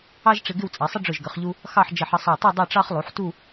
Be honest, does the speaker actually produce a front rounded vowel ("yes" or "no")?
no